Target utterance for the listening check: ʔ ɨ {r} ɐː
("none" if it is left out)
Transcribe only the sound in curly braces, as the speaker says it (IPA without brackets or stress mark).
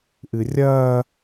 rʲ